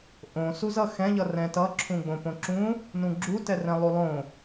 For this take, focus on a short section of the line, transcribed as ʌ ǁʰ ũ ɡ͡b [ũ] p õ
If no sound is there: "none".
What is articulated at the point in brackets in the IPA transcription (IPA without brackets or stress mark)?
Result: õ